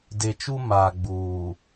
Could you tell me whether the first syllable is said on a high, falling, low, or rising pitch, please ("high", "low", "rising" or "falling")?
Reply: low